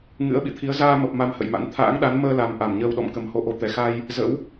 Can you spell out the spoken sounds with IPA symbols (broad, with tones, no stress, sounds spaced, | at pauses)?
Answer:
ŋ ɨ̰˧˥ ə̯ ɓ ḭ˧˨ t̪ʰ i˨˦ ə̯ z aː˧ m ə˨˩ p̚ m a˧ m h ə̰˧˨ j m a̰˧˥ n t̪ʰ a̰ː˧˥ ŋ ɗ a˨˦ n m əː˧ l a˨˩ m ʔ a˧˩ m ɲ əː˧ w ɗ ɔ̰˧˨ m k ə˨˩ m h o˧ ʔ o˨˦ t̪ ɛ˨˩ x a˧ j | z ə̰˧˥ w